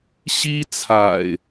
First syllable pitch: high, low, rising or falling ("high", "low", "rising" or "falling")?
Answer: high